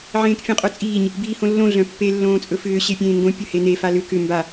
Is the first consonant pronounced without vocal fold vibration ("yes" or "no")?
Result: no